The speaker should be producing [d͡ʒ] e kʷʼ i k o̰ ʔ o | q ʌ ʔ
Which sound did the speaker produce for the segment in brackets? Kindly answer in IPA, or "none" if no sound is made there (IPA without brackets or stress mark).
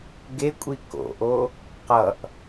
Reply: ɡ